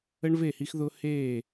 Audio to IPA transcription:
ə˦ɳve˦˨hi˦xðʊː˦ heː˦˨

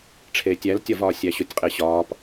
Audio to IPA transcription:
ʈ͡ʂʰeːtʲæltʲɒvɒː sʲæɕotʲqʼeɕɒːp

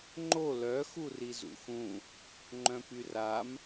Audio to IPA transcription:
ŋ͡ǃo lœ xurizṵxũ | ŋ͡ǃœ̃pyram

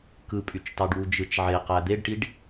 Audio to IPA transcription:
kɯpʼyt͡ʃtɑɖwu d͡ʒɯt͡ʃʕe qæd̪eɖʈiɖ

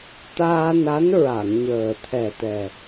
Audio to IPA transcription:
t̪aː˧na˧˥n ɹa˨˩˨ŋɲəː˨˩t̪ʰɛ˨˩t̪ɛ˨˩

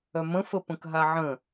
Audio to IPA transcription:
œmə̃ fəpə̃kɦaʕə̃

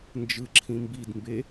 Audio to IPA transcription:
nd͡ʒɯǁʰĩ mbidmbe

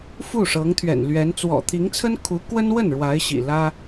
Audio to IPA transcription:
fu˥˩ ʂɤ˧˥ŋt̪ʰɥɛ̰˨˩nlɥɛ˧˥n t͡swɔ̰˨˩t̪ʰi˧˥ŋt͡sʰə˥n kʰu˧˥ kwə˥nwə˥˩n ɻwa˧˥ɪ̯ɕḭ˨˩lä˥

